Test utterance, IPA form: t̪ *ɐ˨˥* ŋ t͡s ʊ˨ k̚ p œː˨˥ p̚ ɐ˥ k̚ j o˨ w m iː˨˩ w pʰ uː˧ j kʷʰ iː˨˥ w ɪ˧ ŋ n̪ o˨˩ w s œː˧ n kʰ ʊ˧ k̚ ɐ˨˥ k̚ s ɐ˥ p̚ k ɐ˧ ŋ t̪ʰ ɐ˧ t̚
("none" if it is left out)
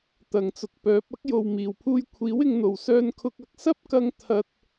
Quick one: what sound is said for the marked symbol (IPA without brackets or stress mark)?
ɐ˨˩